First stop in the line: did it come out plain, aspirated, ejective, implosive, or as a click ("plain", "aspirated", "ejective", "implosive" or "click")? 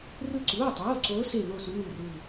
click